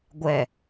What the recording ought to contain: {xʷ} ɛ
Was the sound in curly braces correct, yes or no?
no